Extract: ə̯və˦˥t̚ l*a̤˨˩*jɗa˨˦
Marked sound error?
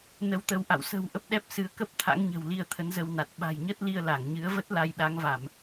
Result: yes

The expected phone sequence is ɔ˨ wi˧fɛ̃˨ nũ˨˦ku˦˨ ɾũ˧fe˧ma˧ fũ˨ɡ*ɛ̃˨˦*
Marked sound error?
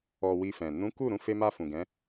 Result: no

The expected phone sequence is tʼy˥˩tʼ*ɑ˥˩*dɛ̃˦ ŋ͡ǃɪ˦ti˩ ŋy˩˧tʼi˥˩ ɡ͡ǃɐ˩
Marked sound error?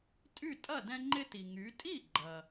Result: yes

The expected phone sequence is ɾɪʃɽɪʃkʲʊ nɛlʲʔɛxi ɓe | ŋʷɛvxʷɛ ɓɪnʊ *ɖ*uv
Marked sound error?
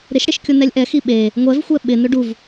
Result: no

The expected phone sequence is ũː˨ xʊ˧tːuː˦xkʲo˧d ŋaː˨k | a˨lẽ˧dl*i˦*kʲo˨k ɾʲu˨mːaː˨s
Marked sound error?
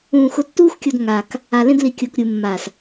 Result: yes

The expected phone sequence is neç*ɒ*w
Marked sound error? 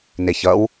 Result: yes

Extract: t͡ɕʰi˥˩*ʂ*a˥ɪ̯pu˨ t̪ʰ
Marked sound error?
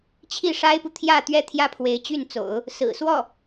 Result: no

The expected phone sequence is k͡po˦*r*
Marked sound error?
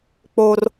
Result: no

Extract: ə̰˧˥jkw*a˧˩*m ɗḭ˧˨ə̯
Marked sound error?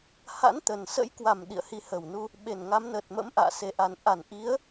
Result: yes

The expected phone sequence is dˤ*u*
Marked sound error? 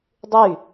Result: yes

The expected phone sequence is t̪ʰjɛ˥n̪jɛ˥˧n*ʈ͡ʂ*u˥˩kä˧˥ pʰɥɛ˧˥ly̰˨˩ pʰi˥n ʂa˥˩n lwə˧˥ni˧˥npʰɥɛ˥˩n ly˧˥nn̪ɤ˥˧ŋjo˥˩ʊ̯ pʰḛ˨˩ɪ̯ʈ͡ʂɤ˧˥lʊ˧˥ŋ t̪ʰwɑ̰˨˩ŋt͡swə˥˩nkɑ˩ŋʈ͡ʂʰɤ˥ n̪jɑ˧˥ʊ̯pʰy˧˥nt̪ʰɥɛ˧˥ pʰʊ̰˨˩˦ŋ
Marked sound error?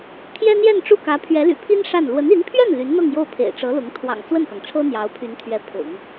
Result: no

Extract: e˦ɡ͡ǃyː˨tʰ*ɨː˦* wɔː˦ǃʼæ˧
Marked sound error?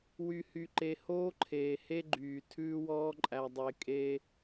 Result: yes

